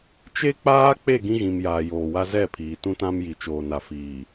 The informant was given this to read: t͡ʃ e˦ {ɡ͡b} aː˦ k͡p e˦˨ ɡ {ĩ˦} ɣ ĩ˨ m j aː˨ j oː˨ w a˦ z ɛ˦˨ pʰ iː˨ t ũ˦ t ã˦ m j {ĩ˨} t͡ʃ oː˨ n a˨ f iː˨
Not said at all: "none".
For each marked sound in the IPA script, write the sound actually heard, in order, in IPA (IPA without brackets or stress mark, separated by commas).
k͡p, ĩ˦, i˨